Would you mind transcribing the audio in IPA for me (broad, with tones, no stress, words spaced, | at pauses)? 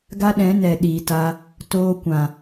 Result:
ɡa˦ɗɛ̃˨˦nɛ˨ ɗiː˨ta˧ | toː˦kʷã˨